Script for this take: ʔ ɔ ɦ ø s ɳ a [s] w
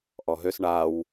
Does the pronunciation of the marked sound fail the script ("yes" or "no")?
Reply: yes